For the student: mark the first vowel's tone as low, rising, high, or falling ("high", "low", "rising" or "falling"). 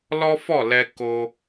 high